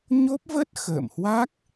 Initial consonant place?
palatal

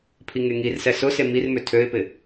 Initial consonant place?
labial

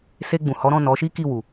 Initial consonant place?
alveolar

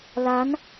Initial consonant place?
alveolar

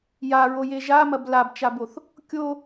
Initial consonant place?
palatal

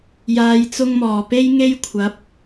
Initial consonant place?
palatal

